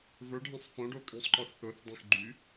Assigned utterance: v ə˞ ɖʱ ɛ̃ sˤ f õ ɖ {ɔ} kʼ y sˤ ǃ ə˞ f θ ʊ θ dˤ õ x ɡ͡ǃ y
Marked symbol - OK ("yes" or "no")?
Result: no